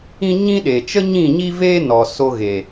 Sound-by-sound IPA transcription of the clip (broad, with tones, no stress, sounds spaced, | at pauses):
ĩ˦ ɲ ĩ˦ ɗ e˨ t͡ʃ ə˦ ɲ ĩ˦˨ ɲ i˦ v eː˦ n ɔ˨ s o˧ ɣ e˨